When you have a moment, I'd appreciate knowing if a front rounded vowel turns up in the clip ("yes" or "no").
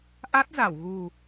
no